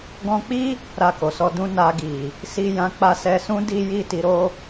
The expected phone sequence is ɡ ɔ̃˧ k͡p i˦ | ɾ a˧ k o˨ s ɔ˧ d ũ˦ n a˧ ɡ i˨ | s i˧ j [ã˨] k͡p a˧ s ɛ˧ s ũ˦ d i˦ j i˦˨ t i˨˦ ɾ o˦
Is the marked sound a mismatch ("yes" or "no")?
yes